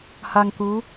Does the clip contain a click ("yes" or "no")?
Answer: no